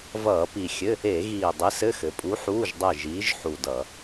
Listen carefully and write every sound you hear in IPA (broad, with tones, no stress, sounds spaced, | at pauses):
v ʌː˧˩˧ p i˨˩ xʲ ɘ˧˥˧ | e˧˩˧ ɣ iː˨˩ dˤ i˨˥ s ɘ˧˥˧ x ɘ˩˧ pʼ u˨˥ ħ uː˧˥˧ ʒ dˤ e˦˨ ʒ iː˨˥ ʒ ħ u˨˩ d ʌ˧˩˧